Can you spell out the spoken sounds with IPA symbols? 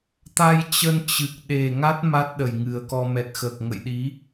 t̪ a˧ j t͡ɕ ə˧ n t͡ɕ ɨ˨˩ k̚ ɗ e˨˩ ŋ a˦˥ t̚ m a˦˥ t̚ ɗ ə˨˩ j ŋ ɨ˨˩ ə̯ k ɔ˧ m ɛ˨˩ t̚ x əː˨˩ k̚ ŋ ə̰˧˨ j ɗ i˨˦

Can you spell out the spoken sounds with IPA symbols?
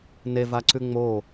n e v a ǀ ʉ ŋ͡m o

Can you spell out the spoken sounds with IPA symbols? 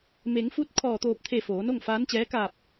m e˩˧ ŋ f u˧˥ t̚ kʰ ɔː˧˩ t̪ oː˧˩ p̚ t̪ʰ e˧˩ f oː˩˧ n o˥˨ ŋ f aː˧˥ n t͡ɕ ɛː˧˥ k aː˧˩ p̚

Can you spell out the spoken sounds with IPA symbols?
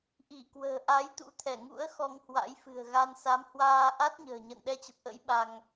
ʔ i˧˩ k w ə̤ː˨˩ ʔ a˨˦ j t̪ ṵ˧˥ t̪ʰ ɛ˧˩ ŋ ṵ˧˥ ə̯ x ɔ˧ ŋ h w a̰˧˥ j f ɨ̤˨˩ ə̯ ɣ a˧ n s a˨˦ m h w aː˧ ʔ a˦˥ t̚ ɲ ə̤ː˨˩ ɲ ə̰˧˨ n ɗ ɛ˧ t͡ɕ ə˨˩ p̚ ʔ ə̰˧˥ j ɓ a˧ ŋ

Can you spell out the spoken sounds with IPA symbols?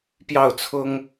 p j ɑ˥˩ ʊ̯ t͡sʰ ʊ˥ ŋ

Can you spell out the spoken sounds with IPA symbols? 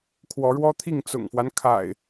kʰ w ɔ˨˦ ɻ w ɔ˦ t̪ʰ i˥˨ ŋ t͡s ʊ̰˨˩ ŋ f w a˦ n kʰ a̰˨˩ ɪ̯

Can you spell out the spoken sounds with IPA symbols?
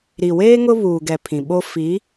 ɾ i˨ w eː˦ ŋ ʊ˦ β uː˨ ɡ ɛ˨ pʰ ĩ˨ ɓ o˦ f i˨˦

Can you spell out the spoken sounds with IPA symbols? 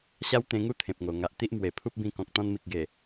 ɕ a˦ w t̪ ẽ˧ ŋ u˦ t̪ʰ ẽ˨ p̚ ŋ o˨˩ ŋ a˨ ʔ t̪ i˦ ʔ m w e˨˩ pʰ u˦ p̚ b ĩ˧ k ɔ̃˨ k̚ t̪ ɔ̃˧ n m i˨ k̚ ɡ e˨˩

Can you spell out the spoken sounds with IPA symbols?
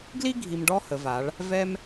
ɡ l i˥ ɡʱ i˧ m ɖ ɔ˥ h ə˩˧ v a˩˧ ɭ | v ɛ˥ m

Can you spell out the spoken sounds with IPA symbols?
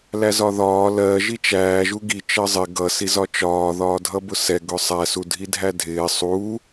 l æ z ɒ ð ɒː l ɜ ʒ i t͡ʃ æː ʒ u ɡ i t͡ʃ ɜ zˤ ɪ ɡ ʌ s i z ɒ t͡ʃ ɒː ð ɒː dʱ ʌ b ʊ s ɛ ɡ ʊ sˤ æ s u dʱ i dʱ æ dʱ ɪː sˤ u

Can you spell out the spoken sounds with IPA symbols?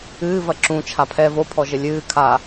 ɨː v ɐ ǁ ũ t͡ʃʰ a pʰ ɛ v o pʰ ɔ ʒ ɘ lʲ ɨː kʰ a

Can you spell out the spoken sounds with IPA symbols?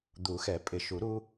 d̪ u˨˩˦ x ɛ˨˩˦ pʼ ɪ˨˩˦ ʃ u˨˩˦ ɾ u˦

